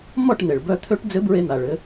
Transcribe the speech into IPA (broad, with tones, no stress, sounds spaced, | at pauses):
m ɔ˥˨ ʈ n̪ e˩ ɭ b œ˧ t̪ʰ ø˧˥ ʈ d͡z ɘ˧˥ b ɹ e˧ n̪ a˩ ɭ ɘ˩˧